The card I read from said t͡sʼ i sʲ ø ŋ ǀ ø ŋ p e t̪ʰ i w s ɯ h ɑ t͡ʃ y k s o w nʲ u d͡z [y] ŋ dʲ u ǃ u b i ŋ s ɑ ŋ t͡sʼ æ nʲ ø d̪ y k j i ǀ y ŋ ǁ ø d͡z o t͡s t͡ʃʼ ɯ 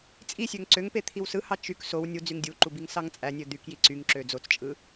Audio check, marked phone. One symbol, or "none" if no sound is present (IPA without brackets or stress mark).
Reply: y